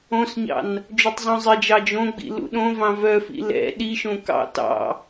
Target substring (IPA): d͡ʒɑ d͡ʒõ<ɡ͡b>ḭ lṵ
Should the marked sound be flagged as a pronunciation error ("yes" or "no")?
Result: no